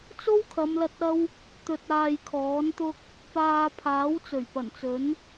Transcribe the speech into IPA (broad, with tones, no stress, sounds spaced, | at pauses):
t͡s o˥ w kʰ ɐ˨˧ m l ɐ˧ t̚ ɐ˥ w | t̪ ɵ˧ t̚ aː˧ j kʰ ɔː˨˥ n t̪ ʊ˥ k̚ | p aː˧ pʰ aː˨˥ w t͡s ɵ˨˩ ɥ p ɐ˨˩ n t͡s ɵ˨˥ n